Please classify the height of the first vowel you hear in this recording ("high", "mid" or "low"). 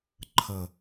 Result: mid